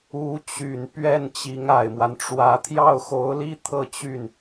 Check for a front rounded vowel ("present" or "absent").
present